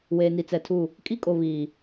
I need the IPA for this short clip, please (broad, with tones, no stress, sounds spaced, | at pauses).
w eː˨ n i˨ t͡s ɛ˨ tʰ u˦˨ | kʼ i˦ kʼ o˨ β iː˨